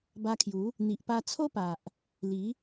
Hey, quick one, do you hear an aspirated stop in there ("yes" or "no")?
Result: yes